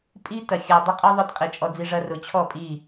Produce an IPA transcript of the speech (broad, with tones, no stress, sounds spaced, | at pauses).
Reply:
pʼ i˦ t ɐ˨ xʲ ʊ˨ ə̯ dˤ ʊ˦ qʼ u˦ ðˤ ʊ˦ t qʼ i˨ t͡ʃʼ ɔ˧ d͡z i˧ ʐ ɐ˦ r ʊ˨ t͡ɕʰ ɔ˦˨ pʼ i˦˨